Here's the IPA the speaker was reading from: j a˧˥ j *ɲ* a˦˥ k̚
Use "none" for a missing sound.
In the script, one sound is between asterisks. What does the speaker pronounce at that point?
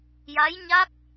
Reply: ɲ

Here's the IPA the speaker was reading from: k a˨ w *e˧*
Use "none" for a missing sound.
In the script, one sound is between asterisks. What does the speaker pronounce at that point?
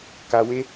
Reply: e˧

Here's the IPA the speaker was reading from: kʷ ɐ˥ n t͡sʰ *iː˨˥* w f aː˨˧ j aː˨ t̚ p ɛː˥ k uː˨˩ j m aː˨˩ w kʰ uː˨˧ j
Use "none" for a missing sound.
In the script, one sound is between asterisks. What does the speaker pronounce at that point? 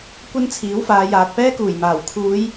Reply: iː˨˥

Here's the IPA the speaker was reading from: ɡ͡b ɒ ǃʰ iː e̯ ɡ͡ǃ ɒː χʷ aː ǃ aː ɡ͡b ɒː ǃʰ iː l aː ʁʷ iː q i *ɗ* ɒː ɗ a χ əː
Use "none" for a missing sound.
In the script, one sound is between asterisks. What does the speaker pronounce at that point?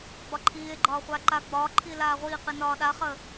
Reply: n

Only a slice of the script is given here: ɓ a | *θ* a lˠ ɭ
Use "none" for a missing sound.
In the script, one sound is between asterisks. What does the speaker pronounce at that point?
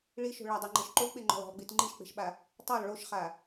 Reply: tˤ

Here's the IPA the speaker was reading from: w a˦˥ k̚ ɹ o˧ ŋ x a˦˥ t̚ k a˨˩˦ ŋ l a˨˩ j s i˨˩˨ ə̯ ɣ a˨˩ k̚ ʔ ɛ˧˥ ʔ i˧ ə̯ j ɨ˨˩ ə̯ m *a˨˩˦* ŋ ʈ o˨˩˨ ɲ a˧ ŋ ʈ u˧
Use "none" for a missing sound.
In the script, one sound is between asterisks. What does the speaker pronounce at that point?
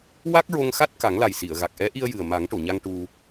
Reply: a˨˩˦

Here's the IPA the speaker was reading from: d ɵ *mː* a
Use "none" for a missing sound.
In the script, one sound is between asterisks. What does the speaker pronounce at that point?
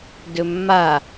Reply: mː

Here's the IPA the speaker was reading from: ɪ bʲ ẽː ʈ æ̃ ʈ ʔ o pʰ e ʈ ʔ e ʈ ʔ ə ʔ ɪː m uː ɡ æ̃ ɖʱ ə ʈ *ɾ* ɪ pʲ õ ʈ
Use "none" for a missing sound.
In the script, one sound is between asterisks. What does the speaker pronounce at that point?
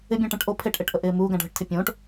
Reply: tʰ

